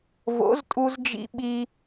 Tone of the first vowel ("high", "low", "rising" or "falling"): rising